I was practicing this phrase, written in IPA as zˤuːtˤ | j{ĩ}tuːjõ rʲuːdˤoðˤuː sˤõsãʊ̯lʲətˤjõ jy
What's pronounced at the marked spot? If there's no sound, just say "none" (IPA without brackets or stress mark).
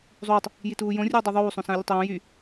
i